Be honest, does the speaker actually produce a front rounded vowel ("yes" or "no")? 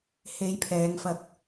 no